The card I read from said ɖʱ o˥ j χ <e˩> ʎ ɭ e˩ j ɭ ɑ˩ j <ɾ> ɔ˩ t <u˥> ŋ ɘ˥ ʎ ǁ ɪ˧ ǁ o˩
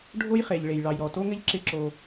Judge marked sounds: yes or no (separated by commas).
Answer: yes, yes, no